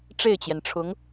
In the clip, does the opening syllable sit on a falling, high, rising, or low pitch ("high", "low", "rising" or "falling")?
falling